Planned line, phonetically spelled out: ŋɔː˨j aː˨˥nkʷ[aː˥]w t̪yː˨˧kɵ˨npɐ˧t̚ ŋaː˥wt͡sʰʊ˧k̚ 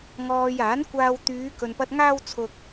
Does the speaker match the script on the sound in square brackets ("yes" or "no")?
no